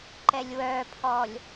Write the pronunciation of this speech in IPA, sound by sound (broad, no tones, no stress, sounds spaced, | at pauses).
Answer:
ǃ ɛ lʲ w œ pʰ ɔ lʲ